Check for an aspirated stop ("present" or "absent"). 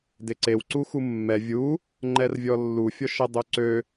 absent